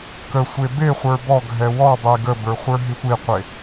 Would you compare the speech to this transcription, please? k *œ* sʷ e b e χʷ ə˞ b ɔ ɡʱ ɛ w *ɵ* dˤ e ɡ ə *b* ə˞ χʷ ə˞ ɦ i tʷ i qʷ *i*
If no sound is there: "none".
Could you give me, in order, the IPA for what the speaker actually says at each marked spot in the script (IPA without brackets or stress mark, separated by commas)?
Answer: ə, ɔ, b, e